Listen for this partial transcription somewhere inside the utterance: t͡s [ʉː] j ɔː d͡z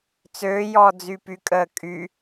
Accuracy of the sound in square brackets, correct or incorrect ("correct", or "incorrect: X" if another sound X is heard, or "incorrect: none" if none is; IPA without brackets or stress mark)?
incorrect: øː